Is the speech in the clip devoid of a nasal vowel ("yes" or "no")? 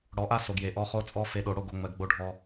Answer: yes